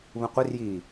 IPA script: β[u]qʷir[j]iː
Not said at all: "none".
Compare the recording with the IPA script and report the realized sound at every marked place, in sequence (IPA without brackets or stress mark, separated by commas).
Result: ũ, j